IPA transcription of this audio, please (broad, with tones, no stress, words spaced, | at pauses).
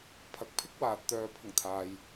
pʰɐ˨˥k̚pʰɪ˥k̚waː˨t̚t̪œː˨ pʰʊ˨˩ŋ t̪ʰaː˨j